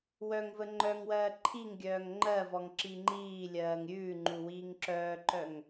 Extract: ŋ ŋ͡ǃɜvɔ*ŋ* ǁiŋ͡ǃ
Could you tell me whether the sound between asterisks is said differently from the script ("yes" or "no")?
no